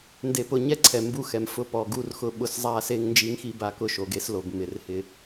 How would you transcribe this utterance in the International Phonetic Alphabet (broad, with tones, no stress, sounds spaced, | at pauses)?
n d e˨ p ʊ˨ ɲ ɛ˦ ǀʰ ɛ˨ m b u˦ x ɛ˨ m f ʊ˦ p ɔ˨ ɡ u˦ r x ʊ˦ ɓ ʊ˦ s zˤ a˦ s e˦ ŋ n d͡ʒ i˦ ŋ x i˦ b a˦ k ʊ˦ ʃ o˨ ɡ e˦ s l o˨ b m ɪ˨ r h ɪ˦